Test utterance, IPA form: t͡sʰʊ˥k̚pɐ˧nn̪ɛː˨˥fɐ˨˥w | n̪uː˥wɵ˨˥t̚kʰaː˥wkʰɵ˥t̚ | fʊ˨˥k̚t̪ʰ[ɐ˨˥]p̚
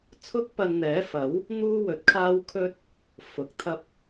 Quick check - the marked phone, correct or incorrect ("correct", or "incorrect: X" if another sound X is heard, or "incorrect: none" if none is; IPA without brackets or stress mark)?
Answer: incorrect: ɐ˥